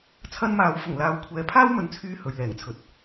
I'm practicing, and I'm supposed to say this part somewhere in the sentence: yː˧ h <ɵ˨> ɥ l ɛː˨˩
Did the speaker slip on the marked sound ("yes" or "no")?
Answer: no